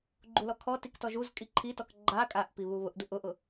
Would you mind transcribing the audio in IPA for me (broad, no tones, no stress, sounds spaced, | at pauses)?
ɡ͡ǃ u l ɔ kʰ ɔ t i k t ɔ ʒ u z kʼ i ǃʰ i t ɔ k ɡ͡ǃ a kʼ a ʔ p i β u β ʊ ʔ d u ʔ ʊ ʔ ʊ